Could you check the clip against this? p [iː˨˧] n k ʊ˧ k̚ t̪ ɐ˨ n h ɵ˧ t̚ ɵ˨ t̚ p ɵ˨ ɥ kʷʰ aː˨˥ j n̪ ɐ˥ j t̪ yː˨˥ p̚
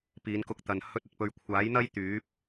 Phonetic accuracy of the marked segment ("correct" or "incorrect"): correct